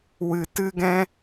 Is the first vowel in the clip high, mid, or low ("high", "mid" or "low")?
high